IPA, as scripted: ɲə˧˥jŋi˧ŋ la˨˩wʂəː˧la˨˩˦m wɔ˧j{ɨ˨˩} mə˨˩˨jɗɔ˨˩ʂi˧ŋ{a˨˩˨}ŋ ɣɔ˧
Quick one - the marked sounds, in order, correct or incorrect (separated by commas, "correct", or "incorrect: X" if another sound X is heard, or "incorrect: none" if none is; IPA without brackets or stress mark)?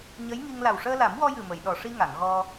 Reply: correct, correct